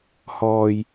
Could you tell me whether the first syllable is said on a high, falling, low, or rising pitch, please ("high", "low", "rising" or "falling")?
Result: low